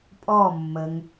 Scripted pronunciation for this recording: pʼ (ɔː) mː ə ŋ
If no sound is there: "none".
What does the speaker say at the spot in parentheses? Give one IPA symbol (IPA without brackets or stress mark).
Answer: ɔː